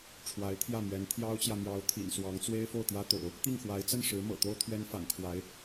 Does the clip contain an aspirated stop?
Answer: yes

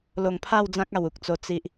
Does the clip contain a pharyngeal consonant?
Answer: no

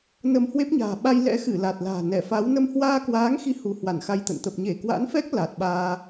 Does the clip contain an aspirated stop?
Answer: no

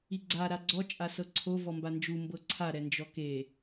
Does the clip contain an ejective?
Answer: yes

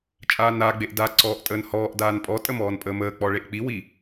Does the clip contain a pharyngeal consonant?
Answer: no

